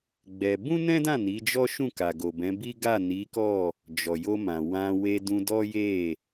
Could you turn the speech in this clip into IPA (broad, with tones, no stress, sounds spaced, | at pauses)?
ɡ͡b ɛ˧ b ũ˦ n ɛ̃˦ d ã˦˨ n i˨˦ d͡ʒ ɔ˦ ʃ ũ˦˨ k a˨ ɡ o˨ b ɛ̃˨˦ b i˦ ɡ a˦˨ n i˨˦ k ɔ˦˨ | d͡ʒ ɔ˨ j o˧ m ã˨ w ã˧ w e˧ d ũ˧ d ɔ˦ j e˦˨